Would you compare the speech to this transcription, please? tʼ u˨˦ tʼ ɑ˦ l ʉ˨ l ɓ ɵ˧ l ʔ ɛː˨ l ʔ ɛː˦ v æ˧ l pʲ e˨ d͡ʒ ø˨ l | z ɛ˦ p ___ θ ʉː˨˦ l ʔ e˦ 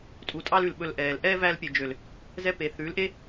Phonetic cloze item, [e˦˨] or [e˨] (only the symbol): e˨